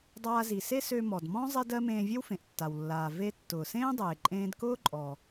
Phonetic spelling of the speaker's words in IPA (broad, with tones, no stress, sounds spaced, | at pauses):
dˤ aː˧ z i˩ s e˥ s ø˧ m ɔ˩ d m ɔ̃˥ zˤ e˧ d ɜ˧ m ẽː˧ vʲ e˥ w f ẽ˩ ʔ tː a˩ w lː aː˩ v e˧ tː ʊː˩ s ẽː˥ dˤ eː˩ ǃʼ ẽː˧ d k ʊː˥ ǃʼ ɔː˩